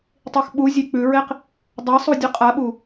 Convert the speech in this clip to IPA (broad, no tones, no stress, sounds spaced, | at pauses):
tˤ i x ɓ u zʲ e k͡p ʉ ɹ e q | dˤ a sˤ u dʲ ʉ qʼ a ɓ u